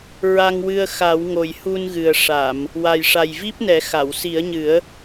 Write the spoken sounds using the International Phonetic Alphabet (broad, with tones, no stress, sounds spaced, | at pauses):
ɹ a˧ ŋ w ɨ˧ ə̯ x a˨˩˦ w ŋ o˨˩ j h u˧ n ɣ ɨ˨˩ ə̯ ʂ a˨˩˨ m | w a˨˩ j ʂ a˨˩ j v i˦˥ p̚ n ɛ˨˩˦ x a˨˩˨ w s i˨˩˦ ə̯ ɲ ɨ˨˩˦ ə̯